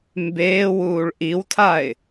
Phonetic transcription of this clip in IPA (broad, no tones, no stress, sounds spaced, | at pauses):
m b eː w uː ɭ ʔ i w tʰ a ɪ̯